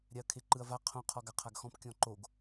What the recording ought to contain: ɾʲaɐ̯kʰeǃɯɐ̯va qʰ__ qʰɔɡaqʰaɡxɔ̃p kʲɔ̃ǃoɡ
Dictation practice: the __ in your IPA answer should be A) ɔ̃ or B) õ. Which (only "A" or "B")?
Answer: B